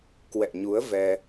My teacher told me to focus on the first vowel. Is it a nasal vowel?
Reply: no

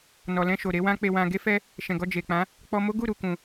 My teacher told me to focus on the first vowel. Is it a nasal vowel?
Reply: no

